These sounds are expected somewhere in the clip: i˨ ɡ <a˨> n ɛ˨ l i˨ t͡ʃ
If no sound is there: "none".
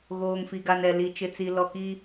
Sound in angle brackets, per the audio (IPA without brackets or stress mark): a˨